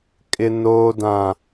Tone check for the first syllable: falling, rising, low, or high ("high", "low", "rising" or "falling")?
low